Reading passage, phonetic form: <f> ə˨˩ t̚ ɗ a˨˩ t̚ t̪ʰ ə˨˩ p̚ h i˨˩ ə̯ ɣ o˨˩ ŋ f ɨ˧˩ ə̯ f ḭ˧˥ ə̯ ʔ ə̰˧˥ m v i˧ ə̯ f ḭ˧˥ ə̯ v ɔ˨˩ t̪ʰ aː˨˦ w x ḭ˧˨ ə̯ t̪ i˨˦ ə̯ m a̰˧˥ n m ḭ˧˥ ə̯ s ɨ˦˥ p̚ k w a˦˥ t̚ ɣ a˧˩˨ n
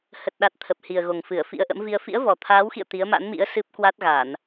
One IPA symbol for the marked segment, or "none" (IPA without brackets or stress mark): h